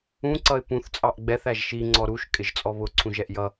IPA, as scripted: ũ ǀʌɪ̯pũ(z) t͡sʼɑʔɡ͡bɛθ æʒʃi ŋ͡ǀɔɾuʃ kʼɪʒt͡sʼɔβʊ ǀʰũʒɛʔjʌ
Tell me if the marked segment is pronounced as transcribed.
no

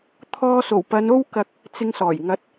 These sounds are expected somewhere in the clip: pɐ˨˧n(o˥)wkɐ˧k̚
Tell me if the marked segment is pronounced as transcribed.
yes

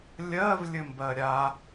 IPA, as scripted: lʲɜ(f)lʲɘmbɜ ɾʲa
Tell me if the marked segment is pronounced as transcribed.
no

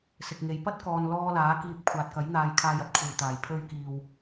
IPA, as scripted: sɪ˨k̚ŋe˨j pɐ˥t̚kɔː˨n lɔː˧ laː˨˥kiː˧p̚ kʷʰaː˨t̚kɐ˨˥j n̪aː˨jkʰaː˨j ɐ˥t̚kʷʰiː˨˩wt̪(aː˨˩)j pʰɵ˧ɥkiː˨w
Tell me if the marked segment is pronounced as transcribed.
yes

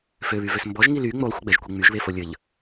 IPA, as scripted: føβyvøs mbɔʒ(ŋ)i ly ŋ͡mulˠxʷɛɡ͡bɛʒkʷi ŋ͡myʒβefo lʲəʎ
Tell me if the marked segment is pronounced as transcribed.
yes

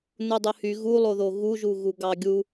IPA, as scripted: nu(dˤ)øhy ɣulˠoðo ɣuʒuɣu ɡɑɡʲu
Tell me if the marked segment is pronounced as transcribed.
yes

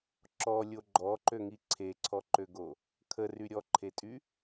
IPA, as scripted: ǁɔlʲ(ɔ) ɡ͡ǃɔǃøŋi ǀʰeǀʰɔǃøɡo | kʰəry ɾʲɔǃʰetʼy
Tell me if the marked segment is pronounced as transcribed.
no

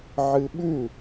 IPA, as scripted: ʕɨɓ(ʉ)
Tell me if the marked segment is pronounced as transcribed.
yes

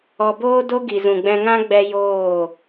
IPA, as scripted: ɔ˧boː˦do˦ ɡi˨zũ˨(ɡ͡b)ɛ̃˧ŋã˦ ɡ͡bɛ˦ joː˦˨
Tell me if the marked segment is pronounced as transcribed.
yes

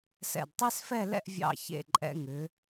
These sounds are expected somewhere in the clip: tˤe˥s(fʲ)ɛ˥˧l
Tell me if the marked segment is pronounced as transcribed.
no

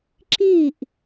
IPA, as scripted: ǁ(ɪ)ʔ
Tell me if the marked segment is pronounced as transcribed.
no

